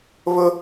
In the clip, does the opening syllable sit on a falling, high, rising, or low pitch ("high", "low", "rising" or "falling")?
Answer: high